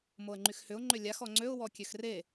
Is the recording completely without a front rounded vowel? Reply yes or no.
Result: no